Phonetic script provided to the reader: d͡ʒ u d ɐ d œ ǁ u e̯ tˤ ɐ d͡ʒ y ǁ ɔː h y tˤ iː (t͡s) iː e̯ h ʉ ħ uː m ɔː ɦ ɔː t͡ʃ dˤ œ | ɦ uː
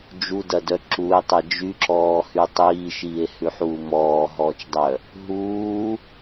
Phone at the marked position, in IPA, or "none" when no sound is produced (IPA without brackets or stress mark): ʃ